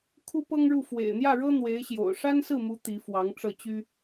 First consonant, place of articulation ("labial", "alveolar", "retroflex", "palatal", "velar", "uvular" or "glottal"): velar